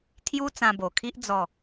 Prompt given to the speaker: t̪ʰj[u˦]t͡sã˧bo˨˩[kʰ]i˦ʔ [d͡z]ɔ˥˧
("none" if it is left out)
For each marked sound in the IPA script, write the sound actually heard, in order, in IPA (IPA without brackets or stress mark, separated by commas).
u˦, kʰ, d͡z